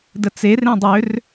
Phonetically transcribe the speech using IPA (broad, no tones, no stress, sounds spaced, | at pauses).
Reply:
d ə t͡s e r ẽ dˤ ø r